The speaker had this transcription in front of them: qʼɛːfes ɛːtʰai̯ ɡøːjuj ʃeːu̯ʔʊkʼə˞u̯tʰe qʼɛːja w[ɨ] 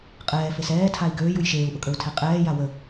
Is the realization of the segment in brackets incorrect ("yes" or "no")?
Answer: yes